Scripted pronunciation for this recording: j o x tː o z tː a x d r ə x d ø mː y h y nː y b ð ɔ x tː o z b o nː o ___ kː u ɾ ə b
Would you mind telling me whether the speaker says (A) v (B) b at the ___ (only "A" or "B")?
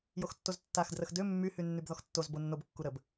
B